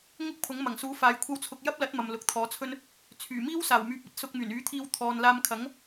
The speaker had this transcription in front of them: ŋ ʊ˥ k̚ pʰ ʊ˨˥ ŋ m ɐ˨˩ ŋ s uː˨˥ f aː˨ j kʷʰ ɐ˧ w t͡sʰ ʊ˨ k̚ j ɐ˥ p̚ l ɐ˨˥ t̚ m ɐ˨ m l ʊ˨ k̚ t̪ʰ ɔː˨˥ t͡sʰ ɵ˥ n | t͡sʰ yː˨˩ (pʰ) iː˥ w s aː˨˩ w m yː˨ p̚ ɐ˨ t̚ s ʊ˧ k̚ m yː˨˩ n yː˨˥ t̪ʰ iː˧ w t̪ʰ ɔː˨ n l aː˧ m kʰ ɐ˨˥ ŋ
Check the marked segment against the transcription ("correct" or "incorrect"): incorrect